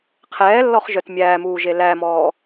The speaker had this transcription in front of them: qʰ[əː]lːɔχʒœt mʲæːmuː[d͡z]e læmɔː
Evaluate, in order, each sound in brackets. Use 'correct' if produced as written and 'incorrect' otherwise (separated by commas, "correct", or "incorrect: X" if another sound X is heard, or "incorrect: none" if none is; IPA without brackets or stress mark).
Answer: incorrect: ɛː, incorrect: ʒ